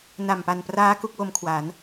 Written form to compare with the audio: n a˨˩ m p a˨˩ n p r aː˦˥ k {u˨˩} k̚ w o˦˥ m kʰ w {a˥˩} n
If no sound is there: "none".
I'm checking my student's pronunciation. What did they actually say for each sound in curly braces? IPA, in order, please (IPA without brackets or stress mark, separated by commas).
u˦˥, a˩˦